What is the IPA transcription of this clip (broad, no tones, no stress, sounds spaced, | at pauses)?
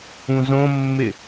ũ z õ mː ɪ